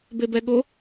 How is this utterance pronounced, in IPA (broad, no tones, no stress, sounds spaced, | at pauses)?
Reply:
b e b ɛ ɠ o